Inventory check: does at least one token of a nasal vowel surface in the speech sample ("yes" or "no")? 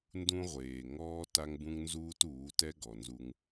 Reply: yes